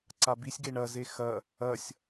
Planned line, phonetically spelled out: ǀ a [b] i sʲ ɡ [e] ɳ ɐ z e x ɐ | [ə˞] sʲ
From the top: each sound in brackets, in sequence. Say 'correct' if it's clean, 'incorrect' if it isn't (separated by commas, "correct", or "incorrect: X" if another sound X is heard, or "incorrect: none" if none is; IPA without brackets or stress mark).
correct, correct, incorrect: ɐ